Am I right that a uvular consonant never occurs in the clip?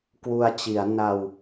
yes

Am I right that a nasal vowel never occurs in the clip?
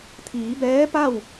yes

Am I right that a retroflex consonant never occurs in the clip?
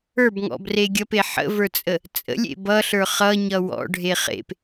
no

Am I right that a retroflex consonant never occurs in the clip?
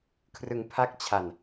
yes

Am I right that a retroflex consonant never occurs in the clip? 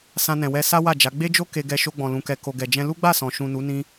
yes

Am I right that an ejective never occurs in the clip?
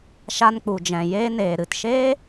yes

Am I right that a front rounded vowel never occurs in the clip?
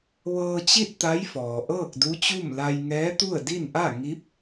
yes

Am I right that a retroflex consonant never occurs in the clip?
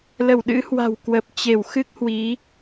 yes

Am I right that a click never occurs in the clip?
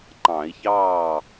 no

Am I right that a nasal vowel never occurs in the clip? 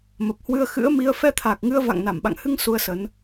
yes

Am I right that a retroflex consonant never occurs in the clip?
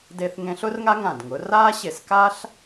yes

